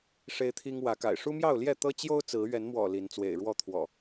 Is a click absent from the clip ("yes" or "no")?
yes